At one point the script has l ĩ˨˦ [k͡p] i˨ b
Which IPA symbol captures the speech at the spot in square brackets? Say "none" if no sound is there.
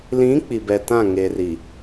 k͡p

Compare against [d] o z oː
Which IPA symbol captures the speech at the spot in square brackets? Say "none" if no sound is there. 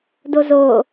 d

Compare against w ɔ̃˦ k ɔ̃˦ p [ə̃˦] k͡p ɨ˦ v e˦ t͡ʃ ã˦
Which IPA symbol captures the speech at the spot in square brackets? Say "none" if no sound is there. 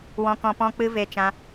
ɔ̃˦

